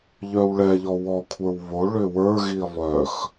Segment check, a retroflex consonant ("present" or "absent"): present